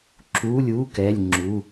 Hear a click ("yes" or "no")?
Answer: yes